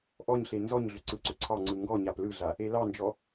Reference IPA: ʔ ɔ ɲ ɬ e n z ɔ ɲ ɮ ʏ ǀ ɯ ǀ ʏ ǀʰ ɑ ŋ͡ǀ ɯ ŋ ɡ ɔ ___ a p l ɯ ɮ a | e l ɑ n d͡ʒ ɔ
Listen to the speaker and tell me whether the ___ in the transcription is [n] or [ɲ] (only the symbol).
ɲ